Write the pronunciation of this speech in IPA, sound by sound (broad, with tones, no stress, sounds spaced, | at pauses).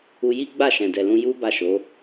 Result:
u˧ j i˦ ɡ͡b a˦˨ ʃ ɛ̃˨ d ɛ˨ l ũ˧ j u˦ b a˦˨ ʃ o˨˦